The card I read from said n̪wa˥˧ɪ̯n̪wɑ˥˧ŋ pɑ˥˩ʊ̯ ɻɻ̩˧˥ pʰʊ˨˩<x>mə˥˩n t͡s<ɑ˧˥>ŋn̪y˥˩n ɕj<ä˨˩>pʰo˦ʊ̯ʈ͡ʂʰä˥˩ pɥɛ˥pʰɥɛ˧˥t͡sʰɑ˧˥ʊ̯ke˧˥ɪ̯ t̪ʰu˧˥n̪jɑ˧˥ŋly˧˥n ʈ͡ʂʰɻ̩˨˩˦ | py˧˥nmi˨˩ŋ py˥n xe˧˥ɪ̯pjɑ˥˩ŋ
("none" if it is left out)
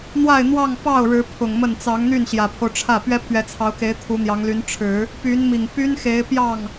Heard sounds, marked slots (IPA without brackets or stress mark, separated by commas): ŋ, ɑ˧˥, ä˨˩